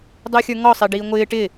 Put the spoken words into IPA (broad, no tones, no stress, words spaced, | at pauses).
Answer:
dˤʊːxʲə˞ŋɔ sˤɪːɖiːŋʷɪː ʈɪ